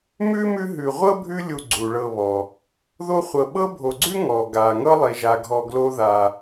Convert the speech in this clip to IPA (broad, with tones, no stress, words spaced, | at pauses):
mʉ˥mʉ˦ ɦʉ˨ʁʷɤ˥bʱʉ˦lʲu˨ ɡ͡ǀu˩ɭɤ˨βɔ˩ | ðo˦χʷɤ˨ɓɤ˥ bʱo˨ɡ͡ǀʉ˥ ŋɔ˩ɡa˩ ŋɤ˥lˠi˩ʒa˩ɡʱɔ˨ ɡlo˦ða˨